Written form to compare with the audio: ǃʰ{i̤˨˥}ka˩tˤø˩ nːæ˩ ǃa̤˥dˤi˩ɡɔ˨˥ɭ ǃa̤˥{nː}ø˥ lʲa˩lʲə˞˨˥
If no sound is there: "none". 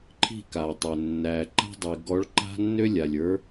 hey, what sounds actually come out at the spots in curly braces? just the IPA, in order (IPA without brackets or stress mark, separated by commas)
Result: i̤˥˩, nː